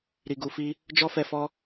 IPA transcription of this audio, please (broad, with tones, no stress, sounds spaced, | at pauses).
ɾ i˨ ɡ u˨ f i˧ | d͡ʒ ɔ˦ f ɛ˧ f ɔ˦